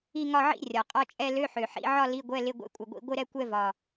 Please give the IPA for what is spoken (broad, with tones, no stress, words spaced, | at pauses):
i˥˧ŋɒ˥˧ʕḭ˥˧ rʲɒ˨˩qʼɒ˥˧t͡ʃʼɛ˥˧ lø˧˥˧ħø˨˩ħḭ˧˥˧ʕɒ˥˧ li˧˥˧ɡʷɛ˧˥˧lɪ˧˥˧ ɡʷḛ˧˥˧kʷʼɪ˨˩ɡʷḭ˧˥˧ ɡʷɪ˥˧ɾɛ˥˧ kʷɛ˥˧vɒ˨˩